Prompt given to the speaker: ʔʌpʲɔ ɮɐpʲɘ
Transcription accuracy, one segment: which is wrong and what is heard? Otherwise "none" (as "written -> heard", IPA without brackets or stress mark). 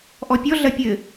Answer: ʌ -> ɔ